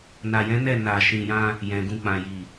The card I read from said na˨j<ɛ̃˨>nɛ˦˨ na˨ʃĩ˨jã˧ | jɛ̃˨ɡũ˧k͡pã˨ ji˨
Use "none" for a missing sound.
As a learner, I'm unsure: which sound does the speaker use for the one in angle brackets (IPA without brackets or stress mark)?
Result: ɛ̃˨˦